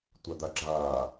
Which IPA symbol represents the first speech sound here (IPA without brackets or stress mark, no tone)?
tʷ